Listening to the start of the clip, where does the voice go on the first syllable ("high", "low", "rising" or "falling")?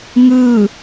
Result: falling